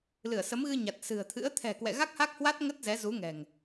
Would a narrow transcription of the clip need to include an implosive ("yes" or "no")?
no